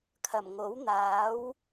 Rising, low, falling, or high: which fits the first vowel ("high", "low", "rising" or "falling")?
low